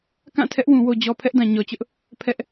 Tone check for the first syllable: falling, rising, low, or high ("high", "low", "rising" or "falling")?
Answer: falling